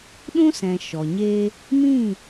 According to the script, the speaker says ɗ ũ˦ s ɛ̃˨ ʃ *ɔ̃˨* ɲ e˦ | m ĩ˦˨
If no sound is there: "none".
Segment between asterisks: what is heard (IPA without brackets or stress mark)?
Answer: ɔ˨